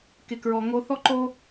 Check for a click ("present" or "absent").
present